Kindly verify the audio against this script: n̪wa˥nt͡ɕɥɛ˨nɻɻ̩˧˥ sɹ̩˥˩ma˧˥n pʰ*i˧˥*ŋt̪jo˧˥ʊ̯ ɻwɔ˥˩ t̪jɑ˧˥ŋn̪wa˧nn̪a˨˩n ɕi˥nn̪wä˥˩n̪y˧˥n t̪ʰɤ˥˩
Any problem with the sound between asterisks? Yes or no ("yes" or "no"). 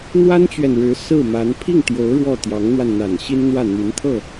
yes